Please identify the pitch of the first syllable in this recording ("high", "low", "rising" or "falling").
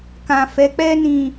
low